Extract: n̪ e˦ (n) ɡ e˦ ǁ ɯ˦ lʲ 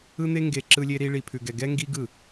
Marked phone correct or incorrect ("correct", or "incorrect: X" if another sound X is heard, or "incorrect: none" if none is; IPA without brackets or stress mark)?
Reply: incorrect: ŋ